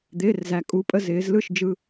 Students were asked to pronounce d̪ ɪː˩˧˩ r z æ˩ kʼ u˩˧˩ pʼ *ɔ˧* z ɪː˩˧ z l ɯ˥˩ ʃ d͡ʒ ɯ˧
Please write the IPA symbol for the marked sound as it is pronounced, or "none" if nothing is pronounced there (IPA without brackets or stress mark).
ə˧